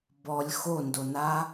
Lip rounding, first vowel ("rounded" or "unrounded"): rounded